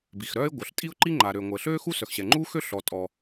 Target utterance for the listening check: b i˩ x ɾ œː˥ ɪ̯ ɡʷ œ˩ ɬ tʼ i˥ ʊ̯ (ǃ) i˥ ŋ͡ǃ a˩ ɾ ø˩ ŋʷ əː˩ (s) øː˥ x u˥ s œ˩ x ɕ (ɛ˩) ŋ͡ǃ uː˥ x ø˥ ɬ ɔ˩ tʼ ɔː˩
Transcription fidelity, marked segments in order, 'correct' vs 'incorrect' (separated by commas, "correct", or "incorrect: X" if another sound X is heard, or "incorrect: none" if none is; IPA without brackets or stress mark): correct, incorrect: ɬ, correct